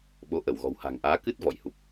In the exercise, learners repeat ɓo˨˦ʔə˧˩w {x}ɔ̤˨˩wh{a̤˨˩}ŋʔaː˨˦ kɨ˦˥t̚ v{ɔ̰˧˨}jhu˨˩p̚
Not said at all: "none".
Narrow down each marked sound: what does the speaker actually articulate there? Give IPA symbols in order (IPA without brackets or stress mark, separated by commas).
ɣ, a̤˨˩, ɔ̰˧˨